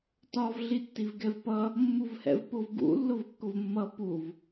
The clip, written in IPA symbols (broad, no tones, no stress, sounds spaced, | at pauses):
t ɒ v ɮ i tː i v ɡ ɛ v p ʌ | mː u v h ɛ̰ v p ʊ v ɡ ṵ lː ʊ v kː ʊ v mː ʌ p u v